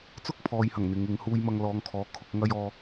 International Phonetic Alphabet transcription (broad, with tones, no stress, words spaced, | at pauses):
t͡sʊ˥k̚pʰɔː˨jhɐ˨˩ŋ n̪ɪ˨˧ŋɪ˨˧ŋ huː˧jmɐ˧ŋlɔː˨˧ŋkʰɔː˨˧ kʰʊ˨˥k̚ŋɐ˥jɔː˥